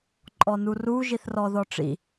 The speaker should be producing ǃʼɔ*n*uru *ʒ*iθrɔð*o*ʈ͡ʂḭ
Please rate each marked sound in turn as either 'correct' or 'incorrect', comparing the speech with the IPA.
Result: correct, correct, incorrect: ɔ

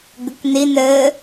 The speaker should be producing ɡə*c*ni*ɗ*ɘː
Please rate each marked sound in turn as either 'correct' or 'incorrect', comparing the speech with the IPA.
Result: incorrect: k, incorrect: n

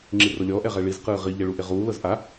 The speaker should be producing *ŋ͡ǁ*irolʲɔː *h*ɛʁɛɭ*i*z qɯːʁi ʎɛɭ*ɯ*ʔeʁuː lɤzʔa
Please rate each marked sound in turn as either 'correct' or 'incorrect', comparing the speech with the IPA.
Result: correct, incorrect: ʔ, correct, incorrect: u

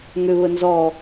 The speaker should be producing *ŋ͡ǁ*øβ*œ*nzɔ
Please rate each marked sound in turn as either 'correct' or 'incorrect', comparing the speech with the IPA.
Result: incorrect: ŋ, incorrect: ə

